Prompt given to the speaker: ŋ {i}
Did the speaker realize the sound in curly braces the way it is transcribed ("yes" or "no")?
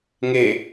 no